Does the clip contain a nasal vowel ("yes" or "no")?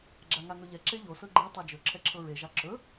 no